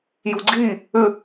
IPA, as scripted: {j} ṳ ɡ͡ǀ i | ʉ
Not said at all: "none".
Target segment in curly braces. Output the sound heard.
j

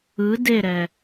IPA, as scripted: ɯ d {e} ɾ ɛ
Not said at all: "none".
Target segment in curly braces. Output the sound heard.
e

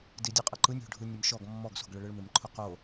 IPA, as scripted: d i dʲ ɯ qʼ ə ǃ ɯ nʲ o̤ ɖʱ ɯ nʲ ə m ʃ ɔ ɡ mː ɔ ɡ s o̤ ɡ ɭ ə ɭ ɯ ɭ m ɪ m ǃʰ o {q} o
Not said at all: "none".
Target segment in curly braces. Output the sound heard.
q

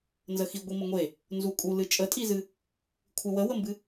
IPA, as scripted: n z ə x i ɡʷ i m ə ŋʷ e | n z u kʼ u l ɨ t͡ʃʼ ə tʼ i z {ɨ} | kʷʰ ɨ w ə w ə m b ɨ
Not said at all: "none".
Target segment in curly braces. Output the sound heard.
ɨ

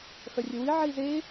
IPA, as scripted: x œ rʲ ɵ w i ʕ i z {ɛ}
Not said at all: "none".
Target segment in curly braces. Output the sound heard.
e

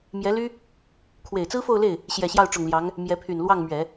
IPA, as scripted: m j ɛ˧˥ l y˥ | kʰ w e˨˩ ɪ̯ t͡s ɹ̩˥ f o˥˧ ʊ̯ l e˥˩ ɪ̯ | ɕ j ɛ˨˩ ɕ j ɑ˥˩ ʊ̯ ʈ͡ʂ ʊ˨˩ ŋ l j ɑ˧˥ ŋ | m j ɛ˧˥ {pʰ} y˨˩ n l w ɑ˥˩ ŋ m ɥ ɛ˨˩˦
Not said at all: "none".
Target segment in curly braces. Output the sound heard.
pʰ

